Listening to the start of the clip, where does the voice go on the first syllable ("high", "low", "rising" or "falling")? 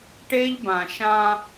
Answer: high